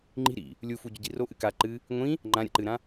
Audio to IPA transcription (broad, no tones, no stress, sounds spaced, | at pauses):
ŋ͡ǃ i̤ ɾ ḭ | lʲ u f u ɟ ɵ ɟ i r o ʔ ɨ k a ǃ ɨ | ŋʷ ĩ | ŋ͡ǃ ã ɾʲ a̰ ǃ ɨ ɾ ã